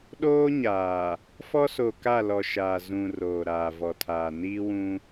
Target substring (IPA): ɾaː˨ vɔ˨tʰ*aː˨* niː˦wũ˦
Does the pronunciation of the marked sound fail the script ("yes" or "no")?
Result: no